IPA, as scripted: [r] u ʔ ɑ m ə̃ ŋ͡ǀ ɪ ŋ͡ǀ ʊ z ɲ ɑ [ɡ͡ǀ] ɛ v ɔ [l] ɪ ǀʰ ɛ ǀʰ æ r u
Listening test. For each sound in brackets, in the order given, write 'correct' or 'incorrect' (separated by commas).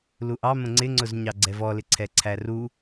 incorrect, correct, correct